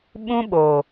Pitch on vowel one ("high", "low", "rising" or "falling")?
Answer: high